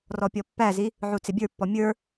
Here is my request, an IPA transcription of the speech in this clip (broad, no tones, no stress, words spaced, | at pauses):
rɔpʲɔpːæzi | ʕut͡sɪbʲə˞pːɔ mʲə˞